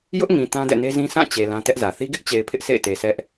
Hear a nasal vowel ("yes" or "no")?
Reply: yes